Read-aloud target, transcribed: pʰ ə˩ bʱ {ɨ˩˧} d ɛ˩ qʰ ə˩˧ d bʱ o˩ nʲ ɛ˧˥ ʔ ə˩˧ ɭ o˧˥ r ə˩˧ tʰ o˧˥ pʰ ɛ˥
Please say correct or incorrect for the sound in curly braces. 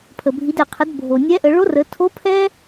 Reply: incorrect